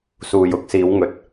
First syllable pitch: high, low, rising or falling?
low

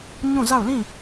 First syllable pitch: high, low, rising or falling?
falling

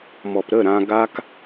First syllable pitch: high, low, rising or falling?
low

